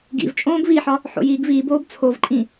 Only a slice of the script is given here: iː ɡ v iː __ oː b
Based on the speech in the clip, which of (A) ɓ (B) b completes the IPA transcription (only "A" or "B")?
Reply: B